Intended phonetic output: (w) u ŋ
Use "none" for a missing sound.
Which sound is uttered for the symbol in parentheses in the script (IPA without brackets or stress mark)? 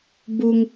b